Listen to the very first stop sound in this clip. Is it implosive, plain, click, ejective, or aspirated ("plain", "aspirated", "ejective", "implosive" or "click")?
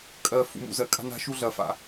ejective